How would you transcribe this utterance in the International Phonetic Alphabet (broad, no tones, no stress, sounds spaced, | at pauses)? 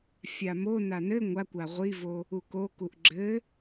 fʲ a m o n a n ɘ ŋʷ a kʷ a ʁʷ i v o | u k o k u ʔ ɡ͡ǁ ɘ